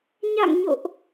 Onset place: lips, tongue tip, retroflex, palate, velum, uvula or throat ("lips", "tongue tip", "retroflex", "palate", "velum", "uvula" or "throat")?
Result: palate